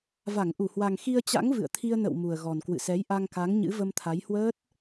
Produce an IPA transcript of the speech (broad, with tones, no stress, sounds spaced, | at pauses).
v a˧˩ ŋ ʔ u˧˩ h w a˨˩ ŋ x i˧ ə̯ t͡ɕ a̰˧˥ ŋ v ɨ̰˧˨ ə̯ t̪ʰ i˧ ə̯ n ə̰˧˨ w m u˨˩ ə̯ ɣ ɔ˨˩ n k w ɨ̰˧˨ s ɛ˨˦ j ʔ a˧ ŋ k a˨˦ ŋ ɲ ɨ̰˧˥ v ə˧ m t̪ʰ a˨˦ j h w əː˦˥ t̚